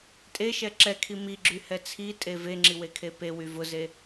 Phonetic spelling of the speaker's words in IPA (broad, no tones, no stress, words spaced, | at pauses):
tʼeʃɛ ǁɛkʰi miɡ͡ǁy hɛt͡sʰitʼe veŋ͡ǁi wekʰepewy vʊze